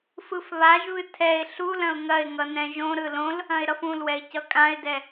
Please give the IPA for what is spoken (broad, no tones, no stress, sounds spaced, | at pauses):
f ɯ f β a ʒ β ɨ tʰ ɛ ɪ̯ ɬ u l ɐ̃ ʊ̯ ŋ ɐ ɪ̯ ŋ ʌ n ɛ̃ ʒ õ ɾ ɯ l õ l | ɐ̃ ɪ̯ ɾ ʌ f ũ l w ɛ ɪ̯ c ʌ kʼ ã ɪ̯ d ɛ